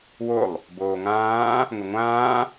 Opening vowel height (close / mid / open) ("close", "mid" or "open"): mid